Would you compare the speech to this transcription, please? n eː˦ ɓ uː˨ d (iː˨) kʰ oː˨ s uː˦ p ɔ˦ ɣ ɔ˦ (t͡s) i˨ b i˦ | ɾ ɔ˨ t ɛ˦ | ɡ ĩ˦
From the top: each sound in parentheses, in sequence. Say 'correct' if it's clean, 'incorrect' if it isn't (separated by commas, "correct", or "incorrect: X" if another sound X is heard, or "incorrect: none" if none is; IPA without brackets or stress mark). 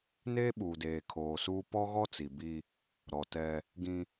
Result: incorrect: eː˨, correct